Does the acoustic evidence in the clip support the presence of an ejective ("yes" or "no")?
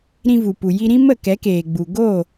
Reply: no